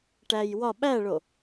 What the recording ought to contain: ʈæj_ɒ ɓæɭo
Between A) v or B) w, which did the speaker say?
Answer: B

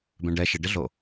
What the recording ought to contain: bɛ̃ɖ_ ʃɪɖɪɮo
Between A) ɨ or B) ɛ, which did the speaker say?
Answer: B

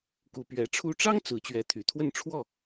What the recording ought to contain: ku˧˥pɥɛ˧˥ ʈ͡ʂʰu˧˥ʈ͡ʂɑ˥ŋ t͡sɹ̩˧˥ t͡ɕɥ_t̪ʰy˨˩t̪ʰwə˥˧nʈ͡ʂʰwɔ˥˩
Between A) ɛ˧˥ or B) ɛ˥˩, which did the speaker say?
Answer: A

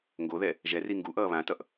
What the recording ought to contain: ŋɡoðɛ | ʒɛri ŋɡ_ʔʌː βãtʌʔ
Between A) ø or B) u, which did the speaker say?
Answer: B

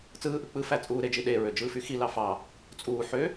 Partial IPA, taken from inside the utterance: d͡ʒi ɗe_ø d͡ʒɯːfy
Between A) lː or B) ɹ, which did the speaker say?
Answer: B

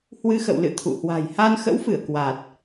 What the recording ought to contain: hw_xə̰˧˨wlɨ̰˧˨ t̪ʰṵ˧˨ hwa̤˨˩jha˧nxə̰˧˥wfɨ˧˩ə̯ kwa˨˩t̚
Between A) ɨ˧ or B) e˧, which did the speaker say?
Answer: A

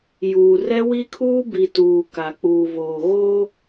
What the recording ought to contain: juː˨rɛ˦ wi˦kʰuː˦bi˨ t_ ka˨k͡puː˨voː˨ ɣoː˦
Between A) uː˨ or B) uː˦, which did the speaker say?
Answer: A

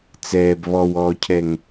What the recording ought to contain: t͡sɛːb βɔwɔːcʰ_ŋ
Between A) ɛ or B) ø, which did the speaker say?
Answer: A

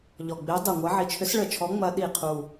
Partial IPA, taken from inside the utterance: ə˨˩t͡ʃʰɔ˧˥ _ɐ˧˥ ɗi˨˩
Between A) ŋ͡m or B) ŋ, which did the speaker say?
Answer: A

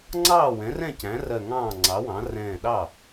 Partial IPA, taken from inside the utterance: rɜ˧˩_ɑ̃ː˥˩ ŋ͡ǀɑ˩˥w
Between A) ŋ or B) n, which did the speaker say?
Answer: A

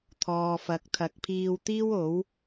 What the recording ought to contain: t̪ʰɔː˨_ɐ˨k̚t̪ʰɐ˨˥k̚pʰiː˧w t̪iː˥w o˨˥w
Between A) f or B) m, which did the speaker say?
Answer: A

